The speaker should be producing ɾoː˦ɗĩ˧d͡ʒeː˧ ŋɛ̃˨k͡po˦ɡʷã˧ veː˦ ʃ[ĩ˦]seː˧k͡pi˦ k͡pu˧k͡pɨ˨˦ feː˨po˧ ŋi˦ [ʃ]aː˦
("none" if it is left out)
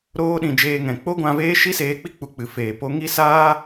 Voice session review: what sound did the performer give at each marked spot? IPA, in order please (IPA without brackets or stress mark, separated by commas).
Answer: i˦, s